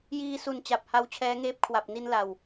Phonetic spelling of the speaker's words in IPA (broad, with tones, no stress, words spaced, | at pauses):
jiː˧su˨˩nt͡ɕa˨˩p̚ ha˦˥wt͡ɕʰɛː˦˥ŋeː˦˥p̚ kʰwa˨˩p̚ni˧nla˨˩w